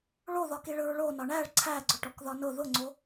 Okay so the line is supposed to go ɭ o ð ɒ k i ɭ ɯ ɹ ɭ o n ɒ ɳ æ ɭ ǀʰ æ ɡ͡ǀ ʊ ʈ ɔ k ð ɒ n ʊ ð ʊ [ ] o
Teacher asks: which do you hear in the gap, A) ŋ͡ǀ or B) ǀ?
A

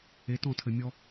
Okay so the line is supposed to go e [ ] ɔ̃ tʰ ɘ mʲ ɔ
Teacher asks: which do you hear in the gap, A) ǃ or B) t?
B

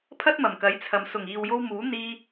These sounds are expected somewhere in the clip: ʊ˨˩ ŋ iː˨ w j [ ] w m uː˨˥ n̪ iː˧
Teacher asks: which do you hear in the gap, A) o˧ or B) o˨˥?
A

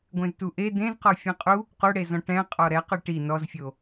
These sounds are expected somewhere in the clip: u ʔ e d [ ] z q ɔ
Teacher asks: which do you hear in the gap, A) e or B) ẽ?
B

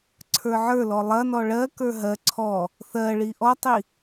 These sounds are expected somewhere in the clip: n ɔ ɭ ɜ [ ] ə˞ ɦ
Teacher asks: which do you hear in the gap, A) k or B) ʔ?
A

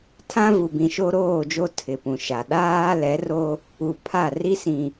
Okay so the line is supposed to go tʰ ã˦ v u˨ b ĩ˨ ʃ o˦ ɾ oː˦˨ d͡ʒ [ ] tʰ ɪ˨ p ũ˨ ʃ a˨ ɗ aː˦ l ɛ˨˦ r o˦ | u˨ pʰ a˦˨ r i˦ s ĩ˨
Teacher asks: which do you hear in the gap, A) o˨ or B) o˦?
B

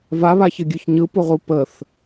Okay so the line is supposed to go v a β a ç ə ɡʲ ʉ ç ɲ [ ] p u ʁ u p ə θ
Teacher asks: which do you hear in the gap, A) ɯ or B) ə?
A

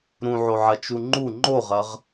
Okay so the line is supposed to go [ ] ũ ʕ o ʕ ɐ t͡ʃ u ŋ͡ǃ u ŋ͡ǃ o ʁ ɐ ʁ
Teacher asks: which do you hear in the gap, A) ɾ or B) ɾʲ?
A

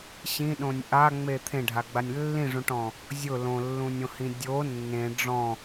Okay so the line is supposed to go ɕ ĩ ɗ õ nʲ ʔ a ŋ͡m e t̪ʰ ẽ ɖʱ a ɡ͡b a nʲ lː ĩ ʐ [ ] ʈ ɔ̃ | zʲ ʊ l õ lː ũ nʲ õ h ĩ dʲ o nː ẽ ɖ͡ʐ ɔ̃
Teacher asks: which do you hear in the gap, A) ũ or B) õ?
A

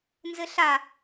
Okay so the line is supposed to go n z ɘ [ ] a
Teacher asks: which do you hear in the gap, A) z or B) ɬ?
B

